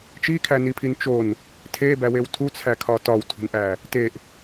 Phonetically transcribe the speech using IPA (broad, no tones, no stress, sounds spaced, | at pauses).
t͡ʃ i kʰ æ n i pʰ i n t͡ʃ o n | tʰ e b æ w e w tʰ u t͡sʰ æ kʰ ɒ t ɒ w tʰ ṳ n ʔ æ | t e ʔ